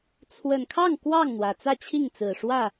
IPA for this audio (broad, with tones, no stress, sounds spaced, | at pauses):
t͡sʰ w ə˨˩ n kʰ ɑ˥˨ ŋ k w ɑ˥˨ ŋ n̪ w ä˩ t͡s ä˥˨ t͡ɕʰ i˥˨ ŋ t͡s ɹ̩˨˩ ʂ w ä˥˨